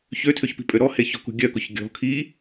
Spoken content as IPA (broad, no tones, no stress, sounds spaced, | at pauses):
ç ø tʰ ø ç p i̤ pʼ ø ɾ ɔ h e ç ɔ̤ k ṳ ɡʲ œ k ʊ ç ɡʲ ɔ̤ kʰ i